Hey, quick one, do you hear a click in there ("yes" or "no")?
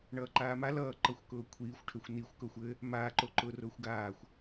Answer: yes